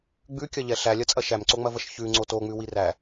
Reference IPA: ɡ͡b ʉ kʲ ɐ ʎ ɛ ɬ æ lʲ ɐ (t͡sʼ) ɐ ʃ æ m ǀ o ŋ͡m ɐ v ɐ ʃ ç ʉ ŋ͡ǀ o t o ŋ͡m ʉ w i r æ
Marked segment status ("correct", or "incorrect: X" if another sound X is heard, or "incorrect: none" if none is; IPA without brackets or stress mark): correct